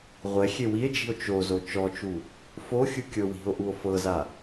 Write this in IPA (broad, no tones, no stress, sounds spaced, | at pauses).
ʁʷ ɛ xʲ e w i e̯ d͡ʒ i̤ o̯ t͡ʃ o z o t͡ʃ ɔ t͡ʃ u | f o xʲ ɯ kʲ ɤ w i̤ o̯ ʔ u o̯ f ɤ z a